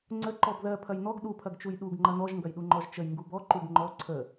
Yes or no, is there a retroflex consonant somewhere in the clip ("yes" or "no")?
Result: no